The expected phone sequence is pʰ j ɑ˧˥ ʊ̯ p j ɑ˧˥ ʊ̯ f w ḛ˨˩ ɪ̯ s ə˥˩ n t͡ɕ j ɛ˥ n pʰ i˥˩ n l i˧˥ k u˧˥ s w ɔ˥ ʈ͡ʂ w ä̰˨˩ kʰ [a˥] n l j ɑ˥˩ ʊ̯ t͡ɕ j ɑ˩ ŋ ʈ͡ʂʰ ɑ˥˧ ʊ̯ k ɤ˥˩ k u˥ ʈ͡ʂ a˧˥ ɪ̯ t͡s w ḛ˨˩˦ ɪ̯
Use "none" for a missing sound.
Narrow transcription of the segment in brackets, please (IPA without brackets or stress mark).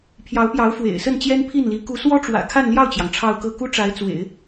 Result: a˥˧